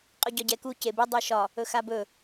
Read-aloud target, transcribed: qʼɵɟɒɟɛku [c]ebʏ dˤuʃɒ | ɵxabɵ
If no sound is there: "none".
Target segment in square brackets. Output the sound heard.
c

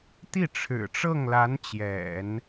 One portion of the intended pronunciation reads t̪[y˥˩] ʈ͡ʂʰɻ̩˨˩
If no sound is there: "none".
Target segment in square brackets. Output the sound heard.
i˥˩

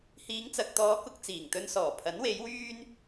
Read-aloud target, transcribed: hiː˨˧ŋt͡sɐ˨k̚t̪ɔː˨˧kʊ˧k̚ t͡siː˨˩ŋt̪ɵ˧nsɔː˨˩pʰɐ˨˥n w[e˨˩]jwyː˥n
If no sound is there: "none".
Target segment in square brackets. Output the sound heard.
e˨˥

